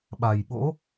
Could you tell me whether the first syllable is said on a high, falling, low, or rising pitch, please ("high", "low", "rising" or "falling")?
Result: low